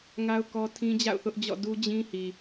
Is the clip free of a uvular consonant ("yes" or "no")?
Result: yes